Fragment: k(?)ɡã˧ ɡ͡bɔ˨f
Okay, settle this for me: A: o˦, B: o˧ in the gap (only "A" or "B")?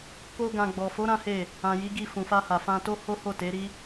A